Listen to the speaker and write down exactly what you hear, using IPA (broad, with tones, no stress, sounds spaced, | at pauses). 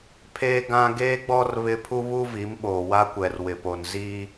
pʰ eː˦ ɡ ã˦ ɡ eː˦ ɡ͡b ɔ˦ r β ɪ˦ pʰ u˦ β u˦ v i˨˦ m ɓ oː˨ w a˦ kʷ ɛ˨ r w ɪ˨ p o˨ n z i˦